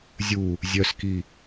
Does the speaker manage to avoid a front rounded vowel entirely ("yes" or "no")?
no